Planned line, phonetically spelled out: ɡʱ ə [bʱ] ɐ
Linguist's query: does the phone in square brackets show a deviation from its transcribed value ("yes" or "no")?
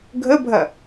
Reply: no